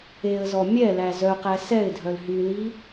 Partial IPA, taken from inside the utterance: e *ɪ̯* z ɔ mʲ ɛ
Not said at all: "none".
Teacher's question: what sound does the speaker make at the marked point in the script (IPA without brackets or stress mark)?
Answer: ə̯